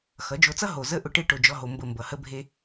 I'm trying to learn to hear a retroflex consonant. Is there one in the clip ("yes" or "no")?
yes